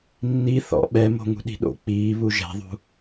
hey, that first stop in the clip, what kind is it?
implosive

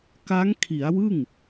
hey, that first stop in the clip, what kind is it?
plain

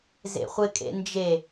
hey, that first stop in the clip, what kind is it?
ejective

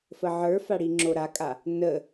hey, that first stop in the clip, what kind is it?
click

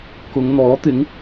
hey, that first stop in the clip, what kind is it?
plain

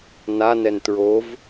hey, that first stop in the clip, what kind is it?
plain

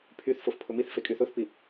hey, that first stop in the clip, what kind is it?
aspirated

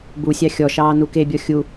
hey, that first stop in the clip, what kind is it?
plain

